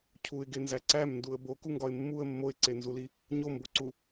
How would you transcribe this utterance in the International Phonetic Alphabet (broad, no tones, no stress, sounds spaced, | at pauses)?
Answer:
cʰ u ɪ̯ ɡ e n z æ ǀ æ m n d u ə̯ b o k u ŋ ɡ ɒ ɪ̯ mː u ə̯ mː o ɪ̯ ǀ e n z u l i | ɲ o m b o ǀ u